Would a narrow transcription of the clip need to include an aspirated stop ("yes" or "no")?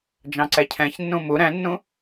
yes